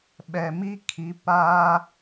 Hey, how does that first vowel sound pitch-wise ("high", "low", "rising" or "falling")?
low